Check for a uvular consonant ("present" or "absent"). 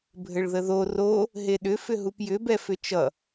absent